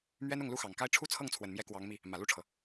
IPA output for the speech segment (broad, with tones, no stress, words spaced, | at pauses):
mɥɛ˥nʊ˥˩ŋ lu˥xɑ˨˩ŋka˥ɪ̯ ʈ͡ʂʰu˥t͡sʰɤ˥˩ŋt͡sʰwə˨˩nmjɛ˧˥ kwɑ˧˥ŋmi˧ | mä˨˩lu˥˩ʈ͡ʂʰɤ˩